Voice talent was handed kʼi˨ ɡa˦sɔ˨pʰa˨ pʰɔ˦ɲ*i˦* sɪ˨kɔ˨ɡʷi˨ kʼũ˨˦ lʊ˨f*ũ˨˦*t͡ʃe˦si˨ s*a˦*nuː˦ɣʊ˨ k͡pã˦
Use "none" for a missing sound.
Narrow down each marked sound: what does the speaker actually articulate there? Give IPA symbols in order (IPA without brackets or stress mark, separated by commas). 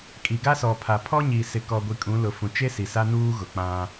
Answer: i˨, ũ˨, a˦